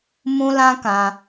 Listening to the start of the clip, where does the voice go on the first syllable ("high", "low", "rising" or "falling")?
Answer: high